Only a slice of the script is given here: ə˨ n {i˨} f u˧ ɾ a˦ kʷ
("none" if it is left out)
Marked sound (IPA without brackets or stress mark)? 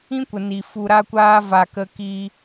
i˨